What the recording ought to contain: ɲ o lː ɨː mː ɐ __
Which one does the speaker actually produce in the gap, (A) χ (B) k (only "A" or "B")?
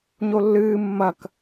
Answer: B